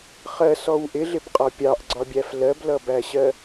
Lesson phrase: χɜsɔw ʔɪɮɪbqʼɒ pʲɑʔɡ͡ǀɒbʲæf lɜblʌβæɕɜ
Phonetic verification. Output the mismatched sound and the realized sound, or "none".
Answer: β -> b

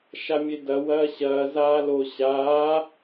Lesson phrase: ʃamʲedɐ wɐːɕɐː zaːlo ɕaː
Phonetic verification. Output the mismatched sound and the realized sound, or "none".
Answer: none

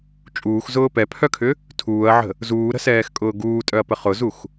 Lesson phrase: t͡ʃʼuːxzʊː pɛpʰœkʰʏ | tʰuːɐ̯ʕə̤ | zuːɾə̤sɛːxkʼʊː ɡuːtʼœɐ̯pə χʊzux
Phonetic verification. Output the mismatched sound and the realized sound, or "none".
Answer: none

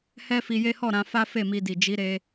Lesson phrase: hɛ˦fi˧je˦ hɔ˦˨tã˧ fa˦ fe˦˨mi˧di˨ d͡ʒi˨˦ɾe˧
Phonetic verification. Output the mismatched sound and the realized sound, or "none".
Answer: t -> ɾ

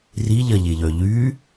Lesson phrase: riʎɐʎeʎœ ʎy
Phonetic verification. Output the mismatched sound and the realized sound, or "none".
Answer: none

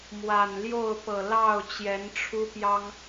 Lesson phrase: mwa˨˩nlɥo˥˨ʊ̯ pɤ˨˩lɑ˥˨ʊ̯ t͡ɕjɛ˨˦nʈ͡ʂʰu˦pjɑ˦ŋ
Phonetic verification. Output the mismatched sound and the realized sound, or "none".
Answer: ɥ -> j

